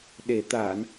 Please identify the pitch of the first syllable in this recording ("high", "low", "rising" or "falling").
low